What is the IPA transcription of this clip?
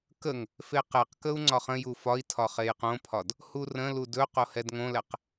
kəŋ | feqɛqkəu̯ ŋ͡ǀɒχə̃ju fɒi̯ tʰɒχejqõpʰɒd | hurə̃lu dɵ qohɛdŋõlɛq

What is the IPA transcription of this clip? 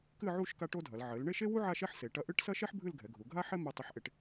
kɨ˥˧ʕu˥˧ʃ ka˥ʈo˥dʱɐ˩˧l ʕɘ˩˧l ɳe˥˧ʃe˥wu˥ ʕa˥˧ʃɛ˥ħse˩˧ ʈɐ˧ʔɨ˥˧ʈsɐ˥ʃɛ˥ħ bʱɨ˥˧lɡʱɛ˩˧ɡʱu˩˧ ɡʱa˥ħɛ˥ mi˧ tˤɨ˧ħʔe˧ʈ

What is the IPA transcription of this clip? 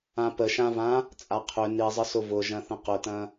ãpəʃãvã | t͡sʼaqʰʏ nizˤəsʊ vʊ ʒɐ̃θə̃qʊtɐ̃

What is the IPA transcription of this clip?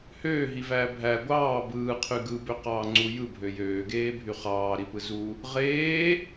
høːɦivæː bʱæ ɡʷɑː bɯːqʰy ɡɯbøqɑː ŋ͡ǀu jɯbʱø jøːɡeːbʱy χɑːɾipɯ zu | ʁeː

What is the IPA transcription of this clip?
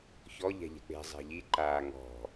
çɔ ʎɛ̤ʎɛ̤k͡pe̤ zˤe̤ʎi ǃaːŋɔ̤

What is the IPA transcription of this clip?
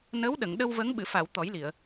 nəː˧˥wɗə˨˩˨ŋ ɗə˧wvə˧˥ŋ ɓɨ˨˩˨fa˨˩˨w t̪ɔ˨˩˦jli˨˩˨ə̯

